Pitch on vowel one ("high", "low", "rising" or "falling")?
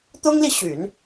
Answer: high